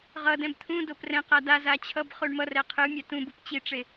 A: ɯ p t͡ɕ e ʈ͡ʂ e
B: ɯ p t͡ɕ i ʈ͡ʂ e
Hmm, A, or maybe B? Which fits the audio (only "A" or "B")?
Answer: B